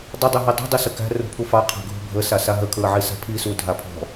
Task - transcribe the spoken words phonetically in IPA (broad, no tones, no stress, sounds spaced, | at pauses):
dˤ ə dˤ ʉ ɦ i dˤ ṳ dˤ i s ə k æ̤ r ṳ pʰ u f ɑ qʰ æ̤ ɡʱ ṳ bʱ ə s a s a ɦ ə kʰ ɹ ə ʕ i s a̤ pʰ i s u dʱ a pʰ ɔ̤